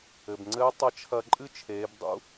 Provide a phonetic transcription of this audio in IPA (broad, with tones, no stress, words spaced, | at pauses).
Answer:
ɘ˩bŋ͡ǀɘː˧˥ tˤɐ˧˥t͡ʃʰɐ˧ ǃʼɨ˥t͡ʃʰeː˩˧bdˤṵ˧˥